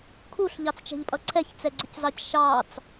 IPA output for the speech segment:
kʰ u ɬ ʎ ɑ t͡s t͡ʃ ɛ̤ ʎ pʼ ʌ ǀʰ ɛ ç t͡s ɛ ɡ͡ǀ ʊ c z ɑ c ʃ ɑ t͡s

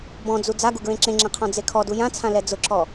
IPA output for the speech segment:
b ɔ̃ d͡z u d͡z a ɡ u ɡ ɹ ẽ ǁ ẽ ŋ͡ǁ ẽ qʰ ɔ̃ d͡z e kʰ ɔ d u j ã t͡sʰ ã l ɛ d͡z ʊ ǁ ɔ

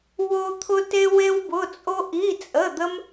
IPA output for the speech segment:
w o˥ t̪ʰ ʊ˥ t e˥ w e˥ w b ʊ˧˥˧ t͡sʼ o˥ ʔ i˧˥˧ t͡sʼ ə˧˥˧ d̪ ə˥ m

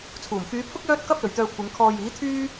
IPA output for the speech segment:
t͡sʰ uː˨˩ m f yː˨˧ pʰ ʊ˥ k̚ j œː˧ t̚ k ɐ˧ p̚ l ɵ˨ ɥ t̪ œː˧ kʷʰ ɪ˨˧ ŋ kʰ ɔː˨ j iː˨˥ t̪ʰ yː˥

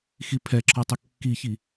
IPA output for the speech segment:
x i pʰ ɛ ǁʰ ɔ tˤ ə kː i ç i

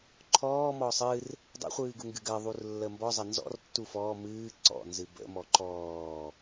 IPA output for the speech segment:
ǃʰ ɔː m ɔː sˤ ɨ r | dˤ ə̰ χʷ ɨː ɡ u ŋ ɡ ɨ ɡ ɜ ðˤ u r lː ə m b ɔ zˤ ə n z ɔ̰ r tː u f ɔː m ɨː ǀ ɔ̰ n z ɨ b ə̰ m ɔ ǃ ɔː

